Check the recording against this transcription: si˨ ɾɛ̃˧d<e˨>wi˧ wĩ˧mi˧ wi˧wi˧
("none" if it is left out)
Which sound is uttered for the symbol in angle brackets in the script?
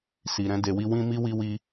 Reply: e˨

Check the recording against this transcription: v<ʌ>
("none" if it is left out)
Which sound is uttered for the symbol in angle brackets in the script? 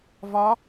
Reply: ɒ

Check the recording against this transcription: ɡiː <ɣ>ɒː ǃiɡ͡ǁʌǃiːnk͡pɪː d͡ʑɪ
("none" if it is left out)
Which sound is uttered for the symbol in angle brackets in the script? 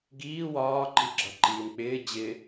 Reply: w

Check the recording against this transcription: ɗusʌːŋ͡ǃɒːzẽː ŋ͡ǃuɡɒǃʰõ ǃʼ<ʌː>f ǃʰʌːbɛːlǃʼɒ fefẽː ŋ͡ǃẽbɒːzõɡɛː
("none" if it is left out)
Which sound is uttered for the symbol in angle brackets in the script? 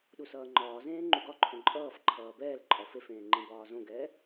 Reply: ʌː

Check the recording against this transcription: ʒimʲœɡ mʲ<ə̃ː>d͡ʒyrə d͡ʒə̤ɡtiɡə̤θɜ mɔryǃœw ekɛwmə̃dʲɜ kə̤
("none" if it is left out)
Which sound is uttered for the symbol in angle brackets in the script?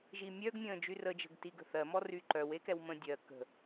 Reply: ə̃ː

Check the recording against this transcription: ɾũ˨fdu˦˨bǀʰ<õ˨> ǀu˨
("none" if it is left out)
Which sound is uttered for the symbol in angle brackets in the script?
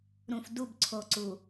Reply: o˨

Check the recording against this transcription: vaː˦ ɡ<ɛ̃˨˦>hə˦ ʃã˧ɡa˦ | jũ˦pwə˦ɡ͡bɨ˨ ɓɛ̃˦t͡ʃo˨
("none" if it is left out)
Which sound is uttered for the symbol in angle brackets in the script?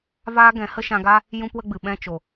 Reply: ɛ̃˨˦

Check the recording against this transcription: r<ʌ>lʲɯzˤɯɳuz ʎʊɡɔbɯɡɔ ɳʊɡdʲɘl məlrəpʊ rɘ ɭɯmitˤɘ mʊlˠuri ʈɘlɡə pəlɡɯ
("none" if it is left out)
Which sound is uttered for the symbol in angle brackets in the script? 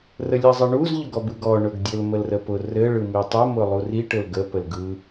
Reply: ə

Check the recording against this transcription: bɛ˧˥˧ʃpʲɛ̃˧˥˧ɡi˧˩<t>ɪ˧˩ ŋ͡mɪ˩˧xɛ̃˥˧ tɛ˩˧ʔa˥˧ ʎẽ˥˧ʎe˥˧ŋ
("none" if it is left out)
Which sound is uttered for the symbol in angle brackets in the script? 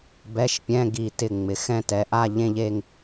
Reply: t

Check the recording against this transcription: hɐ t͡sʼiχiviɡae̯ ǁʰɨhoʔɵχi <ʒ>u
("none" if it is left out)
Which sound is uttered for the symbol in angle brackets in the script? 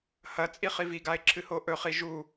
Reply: ʒ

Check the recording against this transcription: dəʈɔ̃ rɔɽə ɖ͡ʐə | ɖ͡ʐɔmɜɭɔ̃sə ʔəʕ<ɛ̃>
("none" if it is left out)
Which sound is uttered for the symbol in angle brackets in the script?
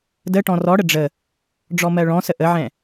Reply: ɛ̃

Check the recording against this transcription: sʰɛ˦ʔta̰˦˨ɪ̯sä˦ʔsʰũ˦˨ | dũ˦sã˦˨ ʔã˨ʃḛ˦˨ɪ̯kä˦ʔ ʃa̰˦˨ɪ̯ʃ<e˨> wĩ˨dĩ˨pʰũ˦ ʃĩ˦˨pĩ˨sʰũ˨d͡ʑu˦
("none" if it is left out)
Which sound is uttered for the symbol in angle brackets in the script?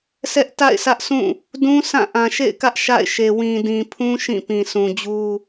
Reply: e˨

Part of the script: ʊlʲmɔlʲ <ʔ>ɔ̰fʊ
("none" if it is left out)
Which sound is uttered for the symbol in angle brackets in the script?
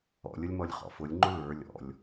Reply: χ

